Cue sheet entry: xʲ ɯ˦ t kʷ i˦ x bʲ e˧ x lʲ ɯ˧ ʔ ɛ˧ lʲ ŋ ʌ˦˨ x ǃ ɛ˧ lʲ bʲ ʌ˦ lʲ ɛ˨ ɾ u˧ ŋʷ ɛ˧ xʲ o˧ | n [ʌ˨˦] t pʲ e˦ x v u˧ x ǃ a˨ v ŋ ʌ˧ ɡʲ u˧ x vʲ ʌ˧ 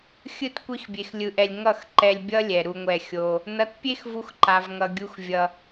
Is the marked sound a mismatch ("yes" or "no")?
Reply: no